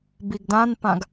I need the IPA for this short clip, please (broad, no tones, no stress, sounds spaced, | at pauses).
b i ɡ d ã n p ã ɡ